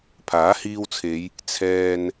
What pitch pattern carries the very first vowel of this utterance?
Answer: rising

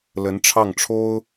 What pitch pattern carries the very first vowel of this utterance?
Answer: rising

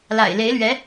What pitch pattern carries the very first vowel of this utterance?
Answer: low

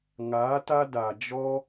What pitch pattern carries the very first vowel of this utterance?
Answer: rising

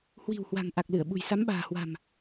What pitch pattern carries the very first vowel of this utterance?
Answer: low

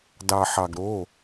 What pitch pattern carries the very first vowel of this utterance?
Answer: low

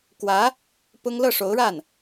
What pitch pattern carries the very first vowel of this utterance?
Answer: rising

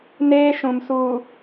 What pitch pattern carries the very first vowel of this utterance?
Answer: high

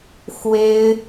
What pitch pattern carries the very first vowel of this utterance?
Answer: high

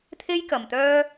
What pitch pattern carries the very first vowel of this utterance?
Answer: high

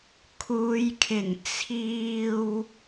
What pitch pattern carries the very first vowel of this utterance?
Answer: low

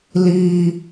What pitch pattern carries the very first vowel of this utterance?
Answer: high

